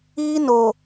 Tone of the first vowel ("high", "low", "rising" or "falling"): high